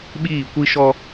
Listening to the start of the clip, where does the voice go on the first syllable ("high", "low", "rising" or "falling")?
falling